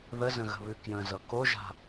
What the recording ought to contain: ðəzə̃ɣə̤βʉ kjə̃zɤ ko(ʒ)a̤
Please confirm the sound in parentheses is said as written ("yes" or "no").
yes